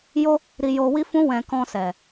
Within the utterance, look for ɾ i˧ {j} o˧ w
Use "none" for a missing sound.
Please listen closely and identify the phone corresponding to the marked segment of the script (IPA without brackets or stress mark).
j